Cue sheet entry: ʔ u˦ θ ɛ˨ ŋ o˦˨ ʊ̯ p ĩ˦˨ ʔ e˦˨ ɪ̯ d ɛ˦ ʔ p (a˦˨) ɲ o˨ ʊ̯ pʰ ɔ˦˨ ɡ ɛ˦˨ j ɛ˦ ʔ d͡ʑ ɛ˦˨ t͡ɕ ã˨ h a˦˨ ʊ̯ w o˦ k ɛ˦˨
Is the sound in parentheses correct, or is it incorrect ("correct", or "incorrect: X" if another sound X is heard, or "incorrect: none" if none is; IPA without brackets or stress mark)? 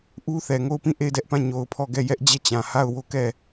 incorrect: ã˦˨